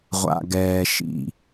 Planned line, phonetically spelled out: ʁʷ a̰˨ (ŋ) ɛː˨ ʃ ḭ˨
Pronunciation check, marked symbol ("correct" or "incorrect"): incorrect